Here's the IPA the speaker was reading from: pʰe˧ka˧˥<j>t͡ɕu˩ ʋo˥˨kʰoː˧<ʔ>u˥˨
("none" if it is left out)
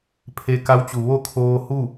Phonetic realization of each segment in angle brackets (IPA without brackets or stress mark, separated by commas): w, h